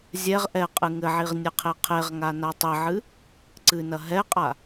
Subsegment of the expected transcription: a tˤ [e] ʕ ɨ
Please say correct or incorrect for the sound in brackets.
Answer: incorrect: ɘ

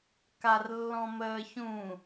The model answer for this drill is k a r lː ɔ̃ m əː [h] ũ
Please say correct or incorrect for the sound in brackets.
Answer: incorrect: ç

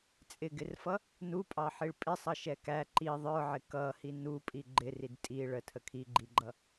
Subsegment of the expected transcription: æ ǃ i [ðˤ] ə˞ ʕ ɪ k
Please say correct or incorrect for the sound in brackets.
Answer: correct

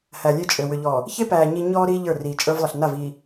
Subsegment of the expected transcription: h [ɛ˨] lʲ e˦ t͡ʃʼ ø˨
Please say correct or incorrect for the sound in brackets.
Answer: incorrect: æ˨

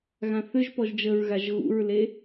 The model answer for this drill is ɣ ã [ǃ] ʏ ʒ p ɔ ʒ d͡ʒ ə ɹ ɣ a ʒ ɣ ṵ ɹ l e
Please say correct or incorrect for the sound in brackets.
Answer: incorrect: θ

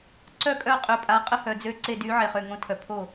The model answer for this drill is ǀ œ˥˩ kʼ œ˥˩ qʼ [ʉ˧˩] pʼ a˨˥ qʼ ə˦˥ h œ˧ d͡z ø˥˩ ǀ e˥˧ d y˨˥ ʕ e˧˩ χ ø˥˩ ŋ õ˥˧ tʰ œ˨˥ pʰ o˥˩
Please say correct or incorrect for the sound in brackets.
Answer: incorrect: ø˧˩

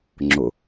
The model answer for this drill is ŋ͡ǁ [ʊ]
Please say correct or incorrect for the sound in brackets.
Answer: correct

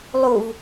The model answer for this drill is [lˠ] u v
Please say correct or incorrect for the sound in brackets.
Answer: correct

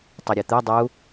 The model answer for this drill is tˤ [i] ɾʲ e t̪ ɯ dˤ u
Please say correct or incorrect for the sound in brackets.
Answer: correct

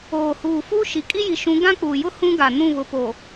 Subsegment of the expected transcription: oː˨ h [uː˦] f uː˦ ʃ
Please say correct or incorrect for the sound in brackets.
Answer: incorrect: uː˨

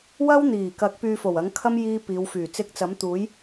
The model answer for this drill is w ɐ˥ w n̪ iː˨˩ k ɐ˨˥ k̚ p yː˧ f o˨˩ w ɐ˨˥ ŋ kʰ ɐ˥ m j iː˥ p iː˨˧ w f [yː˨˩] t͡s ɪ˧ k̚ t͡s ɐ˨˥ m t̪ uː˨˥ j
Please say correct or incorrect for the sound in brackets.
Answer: correct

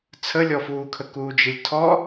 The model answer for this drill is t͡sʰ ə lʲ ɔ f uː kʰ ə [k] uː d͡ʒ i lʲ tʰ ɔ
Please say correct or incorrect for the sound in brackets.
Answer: correct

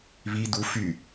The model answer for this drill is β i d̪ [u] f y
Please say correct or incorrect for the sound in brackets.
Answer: correct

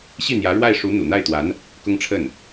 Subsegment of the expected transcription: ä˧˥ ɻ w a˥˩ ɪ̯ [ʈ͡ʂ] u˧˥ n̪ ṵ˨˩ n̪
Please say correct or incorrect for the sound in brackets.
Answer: incorrect: ʂ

